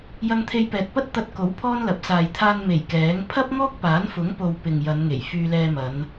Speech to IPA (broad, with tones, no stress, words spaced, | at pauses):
jɐ˧ŋt̪ʰe˧jpɛː˨t̚pɐ˥t̚ t̪ɐ˧t̚ko˨˥w pʰɔː˥nlɐ˨˥p̚saː˨j t̪ʰaː˧nme˨˩j kɛː˨˥ŋ pʰɐ˥p̚ŋɔː˥k̚ paː˨˥nfʊ˨˥ŋpo˨w pɪ˨ŋjɐ˨˧nŋe˨˩j fyː˧lɛː˧mɐ˨˧n